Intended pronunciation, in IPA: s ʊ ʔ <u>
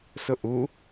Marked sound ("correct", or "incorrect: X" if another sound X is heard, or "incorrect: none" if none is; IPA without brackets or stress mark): correct